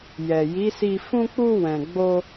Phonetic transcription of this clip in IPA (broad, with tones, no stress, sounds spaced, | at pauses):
j ɛ˨ j i˨˦ s i˧ f ũ˧ k͡p u˧ w ɛ̃˨ ɡ͡b o˧